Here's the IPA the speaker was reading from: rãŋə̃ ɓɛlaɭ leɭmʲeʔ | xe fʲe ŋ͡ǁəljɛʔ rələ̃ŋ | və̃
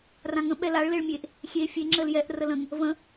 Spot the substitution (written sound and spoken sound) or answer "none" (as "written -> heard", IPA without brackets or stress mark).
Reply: x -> xʲ